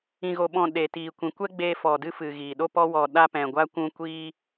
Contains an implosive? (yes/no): yes